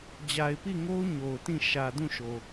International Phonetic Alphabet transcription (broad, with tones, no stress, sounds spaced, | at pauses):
d͡ʑ a˨ ɪ̯ p i˦˨ ŋ o˦ ʊ̯ ɲ o˨ ʊ̯ t ĩ˦˨ ʃ ä˨ d ũ˦˨ ʃ o˨